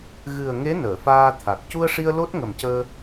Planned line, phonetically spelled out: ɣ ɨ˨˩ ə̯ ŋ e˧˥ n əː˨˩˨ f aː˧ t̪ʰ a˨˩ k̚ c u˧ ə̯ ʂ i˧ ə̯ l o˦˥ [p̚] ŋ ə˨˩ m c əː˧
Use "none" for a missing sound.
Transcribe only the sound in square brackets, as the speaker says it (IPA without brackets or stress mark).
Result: t̚